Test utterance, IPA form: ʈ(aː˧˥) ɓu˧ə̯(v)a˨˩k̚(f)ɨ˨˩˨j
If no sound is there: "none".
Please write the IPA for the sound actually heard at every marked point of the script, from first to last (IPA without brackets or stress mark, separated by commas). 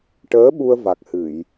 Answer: əː˧˥, v, h